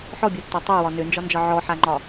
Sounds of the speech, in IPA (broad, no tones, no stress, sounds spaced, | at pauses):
ħ ɔ bʲ ɒ tː ɒ tˤ ø w ɒ n ø n d͡ʒ ɒ n d͡ʒ ɒ ʕ ɔ ħ a ŋ͡ǃ ɒ